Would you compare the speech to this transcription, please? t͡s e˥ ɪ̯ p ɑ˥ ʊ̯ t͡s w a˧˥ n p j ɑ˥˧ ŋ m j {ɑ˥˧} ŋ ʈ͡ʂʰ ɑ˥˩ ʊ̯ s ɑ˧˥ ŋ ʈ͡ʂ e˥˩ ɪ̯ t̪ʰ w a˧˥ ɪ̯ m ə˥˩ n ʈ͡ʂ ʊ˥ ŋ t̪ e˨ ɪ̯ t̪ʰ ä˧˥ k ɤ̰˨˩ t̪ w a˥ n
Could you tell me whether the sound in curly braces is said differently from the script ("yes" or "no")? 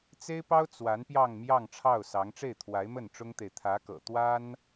no